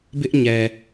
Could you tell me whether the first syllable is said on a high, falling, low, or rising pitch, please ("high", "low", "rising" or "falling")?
high